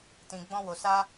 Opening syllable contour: low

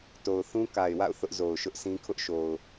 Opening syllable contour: low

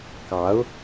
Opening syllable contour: rising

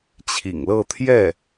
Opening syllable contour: low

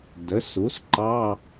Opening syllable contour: rising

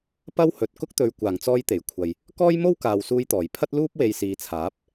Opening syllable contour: high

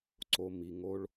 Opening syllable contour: low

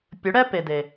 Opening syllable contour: rising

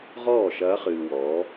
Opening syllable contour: falling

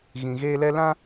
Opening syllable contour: low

